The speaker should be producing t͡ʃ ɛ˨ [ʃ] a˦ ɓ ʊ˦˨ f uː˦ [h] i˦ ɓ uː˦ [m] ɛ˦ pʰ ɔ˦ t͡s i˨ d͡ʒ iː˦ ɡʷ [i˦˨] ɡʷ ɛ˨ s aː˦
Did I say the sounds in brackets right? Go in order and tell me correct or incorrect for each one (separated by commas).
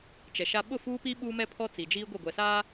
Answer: correct, incorrect, correct, correct